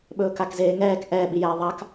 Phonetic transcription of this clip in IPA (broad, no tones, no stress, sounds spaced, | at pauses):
ɓ ɵː k a k z eː ŋ ɛː k ʔ ɛ ɓ i j ɛː ðˤ a k